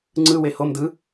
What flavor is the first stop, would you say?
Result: click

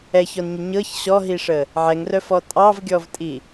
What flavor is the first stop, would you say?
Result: ejective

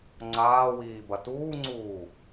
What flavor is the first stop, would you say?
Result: click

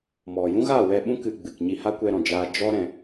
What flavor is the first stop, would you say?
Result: implosive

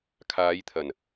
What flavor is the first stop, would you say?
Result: aspirated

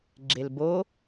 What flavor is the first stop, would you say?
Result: click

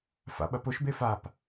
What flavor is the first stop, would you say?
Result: implosive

